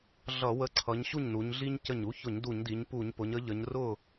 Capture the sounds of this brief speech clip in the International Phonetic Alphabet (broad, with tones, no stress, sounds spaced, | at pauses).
ɮ ʌ˧˩˧ w ə˨˥ ǀʰ ʌ˩˧ ɲ ɕ u˥˩ ɲ n u˩˧ ɲ ɮ i˦ ɲ c ə˧˩ ɲ u˨˥ ç ʊ˧˩˧ ɲ d u˧˩˧ ɲ d i˩˧ ɲ p u˧˩˧ ɲ p ʊ˩˧ ɲ ə˨˥ ʎ ə˩˧ ɲ r ʊ˥˩